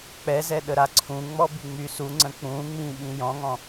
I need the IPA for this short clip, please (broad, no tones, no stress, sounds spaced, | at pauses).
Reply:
k͡p ɛ z ɛ ɗ ə ɾ a ǀʰ ũ ŋ͡m ɔ b y ŋ͡m y s u ŋ͡ǀ ə̃ k͡p ũ ŋ͡m ĩ ɓ ĩ j ɔ̃ ŋ ɔ̃